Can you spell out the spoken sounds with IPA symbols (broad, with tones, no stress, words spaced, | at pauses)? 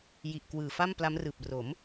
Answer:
ji˨˩ʔkwɯː˨˩fa˥˩m pla˦˥mrɯː˨˩p̚ ro˩˦m